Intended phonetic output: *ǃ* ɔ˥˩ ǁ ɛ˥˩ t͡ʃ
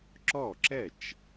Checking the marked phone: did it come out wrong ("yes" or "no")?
yes